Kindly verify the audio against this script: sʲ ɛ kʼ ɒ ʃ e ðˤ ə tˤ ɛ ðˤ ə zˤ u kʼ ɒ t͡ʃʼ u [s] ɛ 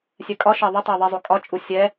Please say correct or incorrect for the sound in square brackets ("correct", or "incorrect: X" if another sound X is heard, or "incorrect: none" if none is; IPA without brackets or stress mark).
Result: incorrect: sʲ